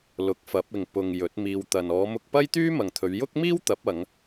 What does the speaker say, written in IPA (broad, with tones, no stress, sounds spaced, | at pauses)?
l ʊ˨˥ k̚ f ɐ˨˥ p̚ ɪ˨ ŋ p ʊ˨ ŋ j ɵ˨˥ t̚ m iː˧ w t̪ ɐ˨ n ɔː˨˧ m ʊ˧ k̚ p ɐ˥ j t̪ yː˥ m ɐ˨ ŋ t̪ʰ ɵ˨˧ ɥ j ʊ˥ k̚ m iː˥ w t̪ ɐ˨˥ p̚ ɐ˨˧ ŋ